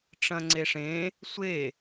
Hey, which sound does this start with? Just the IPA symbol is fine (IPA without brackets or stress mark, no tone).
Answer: ʈ͡ʂ